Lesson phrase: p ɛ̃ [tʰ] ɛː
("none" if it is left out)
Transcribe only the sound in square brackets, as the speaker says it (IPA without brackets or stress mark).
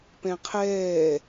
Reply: qʰ